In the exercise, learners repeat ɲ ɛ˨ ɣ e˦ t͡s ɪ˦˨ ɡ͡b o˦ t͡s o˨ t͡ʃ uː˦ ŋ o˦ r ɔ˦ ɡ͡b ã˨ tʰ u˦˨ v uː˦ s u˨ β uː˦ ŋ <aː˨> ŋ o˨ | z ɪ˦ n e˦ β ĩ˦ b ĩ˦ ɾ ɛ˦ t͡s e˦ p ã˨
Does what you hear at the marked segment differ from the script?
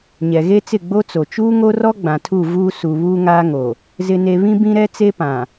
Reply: yes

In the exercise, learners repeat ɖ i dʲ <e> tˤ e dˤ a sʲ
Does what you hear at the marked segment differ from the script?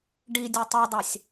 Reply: no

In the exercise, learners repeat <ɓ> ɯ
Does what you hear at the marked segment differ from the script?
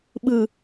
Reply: no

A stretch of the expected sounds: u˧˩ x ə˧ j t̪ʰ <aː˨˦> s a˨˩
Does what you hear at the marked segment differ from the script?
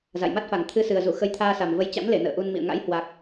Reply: yes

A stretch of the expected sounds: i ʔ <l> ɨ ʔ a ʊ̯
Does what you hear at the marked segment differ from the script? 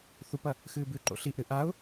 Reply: yes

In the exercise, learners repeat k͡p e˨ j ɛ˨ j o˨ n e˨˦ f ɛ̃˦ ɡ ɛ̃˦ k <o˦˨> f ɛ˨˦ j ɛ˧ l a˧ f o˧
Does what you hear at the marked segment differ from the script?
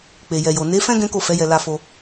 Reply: no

